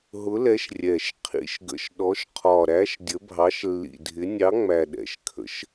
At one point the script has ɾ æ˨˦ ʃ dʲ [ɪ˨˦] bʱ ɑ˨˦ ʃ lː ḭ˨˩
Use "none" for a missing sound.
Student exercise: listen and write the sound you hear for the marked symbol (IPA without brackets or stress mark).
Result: ə˨˦